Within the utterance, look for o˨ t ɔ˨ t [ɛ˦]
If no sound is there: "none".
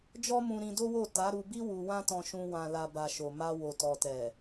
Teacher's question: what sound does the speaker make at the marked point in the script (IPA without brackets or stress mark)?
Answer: ɛ˨